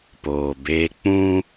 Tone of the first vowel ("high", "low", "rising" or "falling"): low